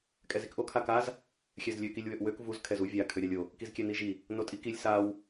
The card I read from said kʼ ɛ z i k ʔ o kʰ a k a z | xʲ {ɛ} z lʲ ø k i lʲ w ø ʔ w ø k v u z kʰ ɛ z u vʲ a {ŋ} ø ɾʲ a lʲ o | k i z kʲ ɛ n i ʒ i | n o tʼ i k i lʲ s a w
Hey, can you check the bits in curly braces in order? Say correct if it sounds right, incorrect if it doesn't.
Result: correct, incorrect

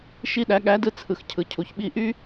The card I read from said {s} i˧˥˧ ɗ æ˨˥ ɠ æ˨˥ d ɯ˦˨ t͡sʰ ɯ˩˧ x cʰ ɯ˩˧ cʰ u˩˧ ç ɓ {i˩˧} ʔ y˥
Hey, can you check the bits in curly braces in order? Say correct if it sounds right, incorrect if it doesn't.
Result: incorrect, incorrect

